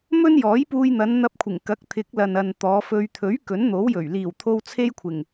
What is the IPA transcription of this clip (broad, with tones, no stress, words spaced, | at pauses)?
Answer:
mɵ˥njɔː˨˥jpuː˧jn̪ɐ˨˧n n̪ɐ˧p̚kʷʰɪ˨˩ŋ kɐ˨˥k̚t̪ʰɪ˨˥k̚lɐ˨n ɐ˨n t̪ɔː˨˧fɵ˧ɥ t̪ʰɵ˨˥ɥ kɵ˨˥nn̪o˨˥wjɵ˨˩ɥ liː˨˩wt̪ʰo˧w t͡sʰe˥jkʷʰɪ˨˩ŋ